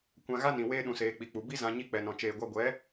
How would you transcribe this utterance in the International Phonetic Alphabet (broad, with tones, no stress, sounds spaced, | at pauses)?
kʷ ã˧ ɣ a˦ n ĩ˨ w eː˧ ɗ ũ˨ s eː˨ k͡p i˨ k͡p u˨ b i˦ z ã˧ ɲ i˧ k͡p ɛ˨ n ɔ̃˨ t͡ʃ eː˨ ɡʷ a˧ ɡʷ ɛ˨˦